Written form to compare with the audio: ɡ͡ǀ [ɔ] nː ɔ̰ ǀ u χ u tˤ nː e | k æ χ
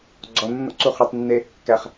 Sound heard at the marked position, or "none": ɔ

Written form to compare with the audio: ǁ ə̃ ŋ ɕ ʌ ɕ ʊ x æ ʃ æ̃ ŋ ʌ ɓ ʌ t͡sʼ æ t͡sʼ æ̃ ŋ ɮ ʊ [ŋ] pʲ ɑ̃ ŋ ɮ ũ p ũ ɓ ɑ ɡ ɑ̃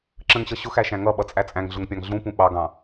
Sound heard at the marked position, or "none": ŋ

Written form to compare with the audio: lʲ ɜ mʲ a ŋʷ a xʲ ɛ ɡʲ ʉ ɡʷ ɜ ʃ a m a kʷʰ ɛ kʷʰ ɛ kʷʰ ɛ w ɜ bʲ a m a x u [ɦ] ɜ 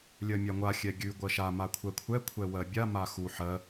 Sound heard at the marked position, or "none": ħ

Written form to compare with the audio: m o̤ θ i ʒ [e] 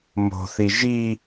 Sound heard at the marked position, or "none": i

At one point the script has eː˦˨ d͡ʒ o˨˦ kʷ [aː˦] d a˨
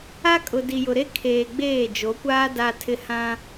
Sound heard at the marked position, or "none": aː˦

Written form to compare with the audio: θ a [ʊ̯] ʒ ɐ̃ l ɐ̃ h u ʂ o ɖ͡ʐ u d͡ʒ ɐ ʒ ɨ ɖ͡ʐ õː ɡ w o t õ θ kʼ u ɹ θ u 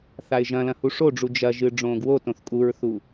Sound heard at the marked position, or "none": ɪ̯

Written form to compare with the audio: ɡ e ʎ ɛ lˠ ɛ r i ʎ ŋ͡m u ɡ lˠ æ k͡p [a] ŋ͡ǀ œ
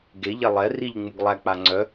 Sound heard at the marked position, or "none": a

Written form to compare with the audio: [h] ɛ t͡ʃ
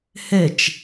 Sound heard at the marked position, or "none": h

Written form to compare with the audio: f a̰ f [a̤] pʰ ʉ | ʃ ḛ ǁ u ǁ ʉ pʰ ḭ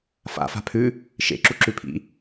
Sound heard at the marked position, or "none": a̤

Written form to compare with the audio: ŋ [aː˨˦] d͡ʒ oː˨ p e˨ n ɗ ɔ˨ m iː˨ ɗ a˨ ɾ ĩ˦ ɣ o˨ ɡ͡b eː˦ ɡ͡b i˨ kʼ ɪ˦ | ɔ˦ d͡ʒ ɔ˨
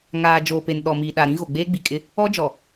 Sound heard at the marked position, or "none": aː˨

